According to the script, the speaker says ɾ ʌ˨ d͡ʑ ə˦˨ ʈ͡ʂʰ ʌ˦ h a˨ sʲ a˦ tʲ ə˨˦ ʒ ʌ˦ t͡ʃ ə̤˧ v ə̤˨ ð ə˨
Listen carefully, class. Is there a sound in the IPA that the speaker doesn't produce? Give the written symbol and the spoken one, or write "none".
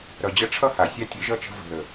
none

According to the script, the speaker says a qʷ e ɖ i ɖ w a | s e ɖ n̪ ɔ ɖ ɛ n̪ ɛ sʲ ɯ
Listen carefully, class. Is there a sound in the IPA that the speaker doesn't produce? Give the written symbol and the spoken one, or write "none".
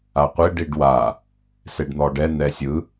none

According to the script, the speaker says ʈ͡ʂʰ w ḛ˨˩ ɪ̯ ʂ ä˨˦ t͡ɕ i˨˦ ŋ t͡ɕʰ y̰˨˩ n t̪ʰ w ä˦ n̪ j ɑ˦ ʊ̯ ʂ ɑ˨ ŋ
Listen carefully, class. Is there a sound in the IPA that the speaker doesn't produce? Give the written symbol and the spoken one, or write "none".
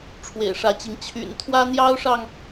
none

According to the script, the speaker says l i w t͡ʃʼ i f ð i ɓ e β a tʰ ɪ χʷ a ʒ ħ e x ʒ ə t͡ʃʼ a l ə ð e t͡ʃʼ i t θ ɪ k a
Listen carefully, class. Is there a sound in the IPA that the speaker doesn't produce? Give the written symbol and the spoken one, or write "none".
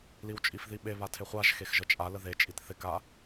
ħ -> x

